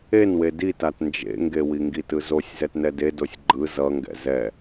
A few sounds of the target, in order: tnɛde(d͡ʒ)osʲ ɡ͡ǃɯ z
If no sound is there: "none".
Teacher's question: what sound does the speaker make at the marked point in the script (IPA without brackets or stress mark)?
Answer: d